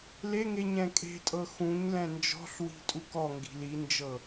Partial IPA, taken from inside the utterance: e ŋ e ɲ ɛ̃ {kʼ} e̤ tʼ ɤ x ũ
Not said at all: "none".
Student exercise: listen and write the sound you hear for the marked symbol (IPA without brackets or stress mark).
kʼ